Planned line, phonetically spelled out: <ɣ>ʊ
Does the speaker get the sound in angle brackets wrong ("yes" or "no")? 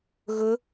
no